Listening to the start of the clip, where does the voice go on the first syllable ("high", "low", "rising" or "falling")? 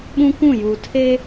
high